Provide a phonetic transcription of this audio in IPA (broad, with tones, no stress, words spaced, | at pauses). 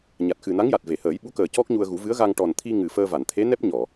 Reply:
ɲa˨˩t̚xɨ˨˩na˧˥ŋja˨˩t̚ ve˨˩˨həː˨˩˦jɓu˧˥kəː˨˩ cɔ˦˥k̚ɲu˧ə̯ɣu˨˩˦ vɨ˧˥ə̯ɣa˧ŋ ʈɔ˨˩nt̪ʰi˧ ŋɨ˨˩fəː˧ va˨˩˨nt̪ʰe˧˥nɛ˦˥p̚ ɲɔ˨˩˨